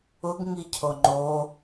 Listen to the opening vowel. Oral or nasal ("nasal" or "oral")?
oral